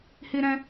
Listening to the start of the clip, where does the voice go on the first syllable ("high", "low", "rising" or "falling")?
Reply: high